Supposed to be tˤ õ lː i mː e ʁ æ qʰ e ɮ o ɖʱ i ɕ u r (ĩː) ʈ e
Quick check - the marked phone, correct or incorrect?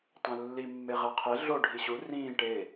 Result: correct